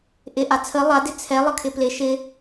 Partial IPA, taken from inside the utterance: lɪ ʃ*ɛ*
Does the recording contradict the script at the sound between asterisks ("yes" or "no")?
yes